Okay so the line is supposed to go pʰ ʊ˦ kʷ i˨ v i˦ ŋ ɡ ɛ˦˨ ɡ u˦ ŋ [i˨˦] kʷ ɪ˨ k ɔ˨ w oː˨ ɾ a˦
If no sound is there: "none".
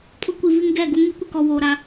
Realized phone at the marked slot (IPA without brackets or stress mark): i˨˦